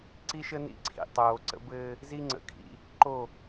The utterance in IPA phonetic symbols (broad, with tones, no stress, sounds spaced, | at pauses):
ǀ i˦ ʃ ə˦ n ḭ˦ ǀʰ ḭ˨ tˤ oː˨ ǀ ə̰˦ b ɘː˦ | z i˦ ŋ͡ǀ ə̰˨ kʰ ḭ˦ | ǃ o˦˨